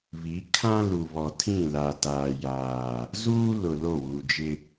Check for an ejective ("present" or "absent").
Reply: absent